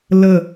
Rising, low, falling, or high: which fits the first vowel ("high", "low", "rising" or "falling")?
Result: falling